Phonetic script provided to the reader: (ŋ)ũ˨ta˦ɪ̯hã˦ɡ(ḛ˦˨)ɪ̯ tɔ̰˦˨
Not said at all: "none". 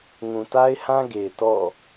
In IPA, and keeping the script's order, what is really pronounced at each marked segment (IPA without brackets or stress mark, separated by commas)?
ŋ, e˨